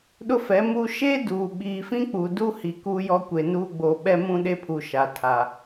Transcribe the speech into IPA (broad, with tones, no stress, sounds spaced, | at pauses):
ɗ ʊ˦ f ɛ˨˦ m u˦ ʃ e˦ d uː˨ ɓ iː˨ f ĩ˦ k͡p u˨ d u˦ h i˨ k uː˦ j ɔ˦ kʷ e˨ n uː˦ ɡ͡b o˨ ɓ ɛ˦ m ũ˦ ɗ e˦ pʰ u˨ ʃ a˨ tʰ a˨